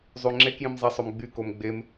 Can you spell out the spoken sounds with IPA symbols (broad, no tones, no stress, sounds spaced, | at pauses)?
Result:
zˤ y ŋ͡ǁ e k j ĩ m zˤ a sˤ ø m ɡ͡b y k o m ɡ͡b e m